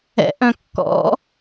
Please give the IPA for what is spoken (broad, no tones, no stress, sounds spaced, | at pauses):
ɛ̰ ʔ œ̃ kː ɔ̰